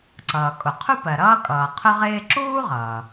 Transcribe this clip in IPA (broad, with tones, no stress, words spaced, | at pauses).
ǀʌː˩kʼʊ˩qʰu˥ pɜ˩ɾʌː˥kʼʌː˩ qʰʊ˥ʁɪː˥ ǁuː˥ʁʌː˩